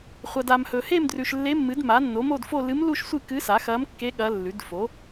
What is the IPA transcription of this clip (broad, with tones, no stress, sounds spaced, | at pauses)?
χʷ ɐ˨ d a˨ m h ɵ˨ h e˥˧ m d r ʉ˨ ʃ lː e˧˥ mː ɨ˩˥ d m a˩˥ nː o˩˥ m o˥˧ d f o˥˧ l ɨ˧˥ m l u˥˧ ʃ sʷ ɨ˥˧ k ɨ˧˥ s a˩˥ x ɐ˧˥ m kː e˧˥ ɠ ɐ˧˥ lː ʉ˩˥ d f o˩˥